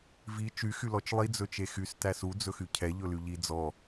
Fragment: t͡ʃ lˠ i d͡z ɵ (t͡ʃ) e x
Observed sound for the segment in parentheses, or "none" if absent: t͡ʃ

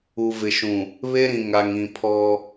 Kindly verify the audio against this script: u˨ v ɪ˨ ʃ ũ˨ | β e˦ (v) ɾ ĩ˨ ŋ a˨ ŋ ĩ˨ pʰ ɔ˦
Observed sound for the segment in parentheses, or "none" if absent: none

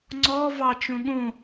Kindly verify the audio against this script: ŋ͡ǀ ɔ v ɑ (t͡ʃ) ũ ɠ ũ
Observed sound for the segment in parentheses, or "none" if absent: t͡ʃ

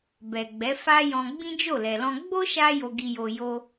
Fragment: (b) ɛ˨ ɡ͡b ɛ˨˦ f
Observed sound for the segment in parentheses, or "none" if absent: b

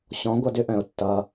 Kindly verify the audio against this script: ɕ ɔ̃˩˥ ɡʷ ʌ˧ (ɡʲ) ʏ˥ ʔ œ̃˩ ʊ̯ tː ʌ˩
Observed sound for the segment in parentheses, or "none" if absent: d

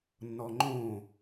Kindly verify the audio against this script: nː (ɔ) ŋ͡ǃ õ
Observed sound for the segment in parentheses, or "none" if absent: ɔ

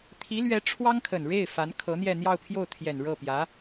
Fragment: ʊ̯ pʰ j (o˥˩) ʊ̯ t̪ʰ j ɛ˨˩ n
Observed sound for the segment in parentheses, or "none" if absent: o˥˩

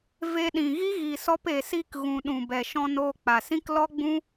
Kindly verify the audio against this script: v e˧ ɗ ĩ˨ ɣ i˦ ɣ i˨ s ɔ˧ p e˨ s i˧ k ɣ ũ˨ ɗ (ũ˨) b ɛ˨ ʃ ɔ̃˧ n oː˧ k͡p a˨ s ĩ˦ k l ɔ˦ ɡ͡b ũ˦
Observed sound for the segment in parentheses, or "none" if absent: ũ˨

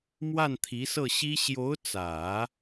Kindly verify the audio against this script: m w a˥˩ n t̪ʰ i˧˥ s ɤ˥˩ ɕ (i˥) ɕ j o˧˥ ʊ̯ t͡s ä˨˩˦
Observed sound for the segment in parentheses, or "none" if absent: i˥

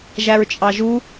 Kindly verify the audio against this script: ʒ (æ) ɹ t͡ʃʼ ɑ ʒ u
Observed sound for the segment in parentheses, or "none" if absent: æ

